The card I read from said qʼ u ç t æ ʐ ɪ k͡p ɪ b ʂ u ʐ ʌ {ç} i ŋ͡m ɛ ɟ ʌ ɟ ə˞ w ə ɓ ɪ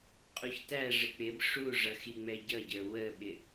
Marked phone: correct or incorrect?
incorrect